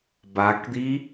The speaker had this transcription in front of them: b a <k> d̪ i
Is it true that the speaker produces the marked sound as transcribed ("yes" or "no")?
yes